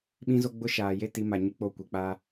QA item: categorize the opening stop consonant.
implosive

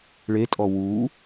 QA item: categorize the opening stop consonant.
ejective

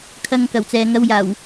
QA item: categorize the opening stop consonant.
aspirated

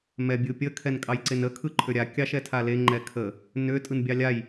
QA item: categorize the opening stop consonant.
plain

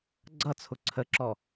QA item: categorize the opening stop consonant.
click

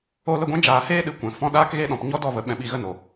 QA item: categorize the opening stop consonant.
plain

